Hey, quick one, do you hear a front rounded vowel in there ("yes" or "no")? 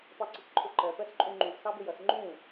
no